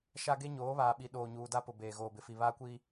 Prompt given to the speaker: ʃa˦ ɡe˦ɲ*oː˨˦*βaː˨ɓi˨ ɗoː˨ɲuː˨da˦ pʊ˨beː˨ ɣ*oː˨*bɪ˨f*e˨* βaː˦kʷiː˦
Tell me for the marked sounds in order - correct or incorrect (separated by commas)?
correct, correct, incorrect